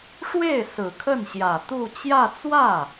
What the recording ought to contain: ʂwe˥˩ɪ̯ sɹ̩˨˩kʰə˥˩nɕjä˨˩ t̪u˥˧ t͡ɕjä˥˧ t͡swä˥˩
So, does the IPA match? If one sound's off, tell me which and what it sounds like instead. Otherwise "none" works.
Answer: none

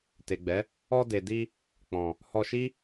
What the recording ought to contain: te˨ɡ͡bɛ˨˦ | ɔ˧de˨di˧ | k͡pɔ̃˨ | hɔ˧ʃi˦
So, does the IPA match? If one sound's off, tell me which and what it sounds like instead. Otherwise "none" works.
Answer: none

